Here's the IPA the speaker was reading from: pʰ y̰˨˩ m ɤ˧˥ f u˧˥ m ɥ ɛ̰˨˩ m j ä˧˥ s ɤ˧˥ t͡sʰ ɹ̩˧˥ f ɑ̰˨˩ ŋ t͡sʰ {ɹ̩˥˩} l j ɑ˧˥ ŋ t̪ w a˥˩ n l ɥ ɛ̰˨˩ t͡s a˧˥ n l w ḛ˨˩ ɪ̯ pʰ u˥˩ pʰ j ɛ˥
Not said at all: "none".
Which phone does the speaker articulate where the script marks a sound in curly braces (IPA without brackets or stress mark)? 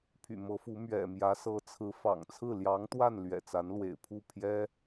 ɹ̩˥˩